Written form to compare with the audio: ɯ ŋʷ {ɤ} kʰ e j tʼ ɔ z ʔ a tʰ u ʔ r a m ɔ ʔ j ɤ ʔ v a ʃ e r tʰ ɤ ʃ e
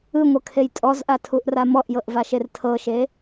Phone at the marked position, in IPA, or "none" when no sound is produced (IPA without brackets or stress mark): ɤ